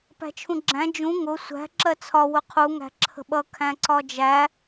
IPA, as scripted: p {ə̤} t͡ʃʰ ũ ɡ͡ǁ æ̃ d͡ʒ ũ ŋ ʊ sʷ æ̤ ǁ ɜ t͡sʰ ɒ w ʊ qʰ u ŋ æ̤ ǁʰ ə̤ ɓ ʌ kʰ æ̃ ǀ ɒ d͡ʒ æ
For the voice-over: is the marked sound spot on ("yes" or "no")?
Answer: no